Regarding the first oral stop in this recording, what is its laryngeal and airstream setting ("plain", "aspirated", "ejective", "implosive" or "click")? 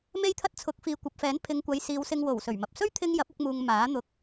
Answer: aspirated